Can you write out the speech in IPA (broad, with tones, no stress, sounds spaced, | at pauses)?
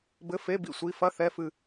b ɘ˧˥˧ f e˧˥˧ b ḭ˦˨ sʷ i˧˥˧ f ɐ˧˥˧ θ ɛ˧˥˧ f ɨ˦˨